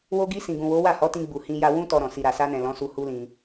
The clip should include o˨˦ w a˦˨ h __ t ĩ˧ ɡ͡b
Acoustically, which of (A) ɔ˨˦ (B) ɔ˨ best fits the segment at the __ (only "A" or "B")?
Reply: A